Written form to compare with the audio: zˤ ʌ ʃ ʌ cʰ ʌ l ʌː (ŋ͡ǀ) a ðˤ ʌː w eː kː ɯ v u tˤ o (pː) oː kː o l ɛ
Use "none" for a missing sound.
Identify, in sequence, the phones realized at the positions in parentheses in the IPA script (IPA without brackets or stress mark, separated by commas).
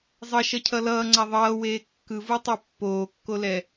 ŋ͡ǀ, pː